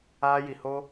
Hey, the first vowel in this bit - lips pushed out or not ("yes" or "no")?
no